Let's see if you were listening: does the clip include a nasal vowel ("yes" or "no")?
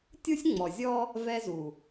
no